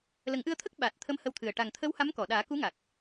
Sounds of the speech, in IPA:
l ə˨˩˦ ŋ ʔ ɨ˧ ə̯ t̪ʰ ə˦˥ k̚ ɓ a˨˩ t̚ t̪ʰ ə˧˥ m h ə˧ w t̪ʰ ɨ˨˩ ə̯ ʈ a˨˩ ŋ t̪ʰ ə˧˥ w h a˧˥ m k ɔ˨˩˨ ɗ aː˨˩˦ k u˧˥ ŋ a˨˩ k̚

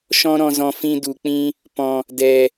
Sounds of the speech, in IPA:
ʃ ɔ̃˧ ɾ ɔ̃˨ z ɔ̃˨ f ĩ˧ d u˨ k͡p ĩ˦ | p ɔ̃˨ | d ɛ˨

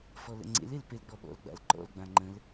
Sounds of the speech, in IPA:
f ɔ l ə̰ ŋ͡ǀ ḛ l e l p e l ɡ͡b ɔ ɓ ɔ̰ l ɡ͡b a̰ l ǃ ɔ̰ l ɡ͡b ã ŋ͡ǃ ə̃ l

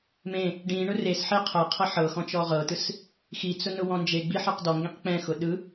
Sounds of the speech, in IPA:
m ẽ | ɖ ĩ ɳ ʊ r e s ħ e qʰ ɤ qʰ ɤ ħ ɤ x ɔ̃ t͡ʃ ɔ ʁ ɤ t ɯ s | x i t͡s ʊ n ʊ w ɔ̃ n d͡ʒ e ɡ͡b i ħ ɯ q d ɔ ŋ ɡ ĩ q k͡p ɛ̃ x ʊ ɗ ɯ

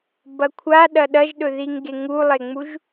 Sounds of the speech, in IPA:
b ɐ kʷʰ a ɗ ɐ ɗ ɐ ʒ ɗ ɵ ð i ŋ ɡ e ŋ u lˠ e ŋ͡m u ʒ

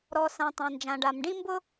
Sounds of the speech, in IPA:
ɾ ɔ˨ s ã˨ tˤ ã˨ n d͡ʒ ã˨ ɖ a˨ m ɖ ĩ˦ m b ʊ˦

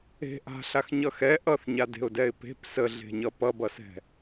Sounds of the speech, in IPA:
e̤ ʔ a̤ ɬ a x ɲ ʌ x ɛ ʔ ʌ θ ɲ a d e̤ ʊ̯ d ɛ ɪ̯ p e̤ p s ə ɮ e̤ ɲ ʌ p ʌ b ʌ s ɛ̤

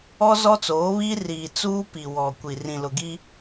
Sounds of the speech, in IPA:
ɔ˦ z ɔ˦ t͡s oː˨˦ β iː˦ r iː˨ t͡s uː˦ p i˨ w ɔ˨ kʷ i˨ r ĩ˨ l ʊ˨ ɡ i˦

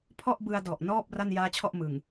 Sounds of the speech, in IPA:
pʰ ɔ˥˩ ʔ b ɯ˧ a̯ d ɔ˨˩ ʔ n ɔː˥˩ p̚ r a˥˩ n j aː˦˥ t͡ɕʰ ɔ˥˩ ʔ m ɯ˨˩ ŋ

